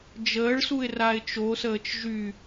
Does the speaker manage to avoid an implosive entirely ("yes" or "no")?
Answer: yes